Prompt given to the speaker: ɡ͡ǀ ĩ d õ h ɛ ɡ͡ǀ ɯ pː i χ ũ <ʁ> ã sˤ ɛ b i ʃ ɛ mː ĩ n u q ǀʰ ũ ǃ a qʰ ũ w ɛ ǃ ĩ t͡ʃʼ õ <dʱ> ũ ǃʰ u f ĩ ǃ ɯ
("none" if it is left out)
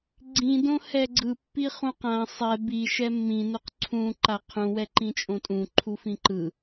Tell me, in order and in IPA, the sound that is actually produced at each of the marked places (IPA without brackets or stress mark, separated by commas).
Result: q, tʼ